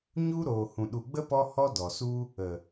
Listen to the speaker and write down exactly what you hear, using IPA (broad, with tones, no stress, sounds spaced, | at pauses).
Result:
ɲ u˦ ɾ oː˨ h ũ˨ ɗ u˨ ɡ͡b ə˦ p ɔ˦ h ɔ˦ d ɔ˨ s u˦ | ə˨